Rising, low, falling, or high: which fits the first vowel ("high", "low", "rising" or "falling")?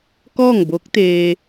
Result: falling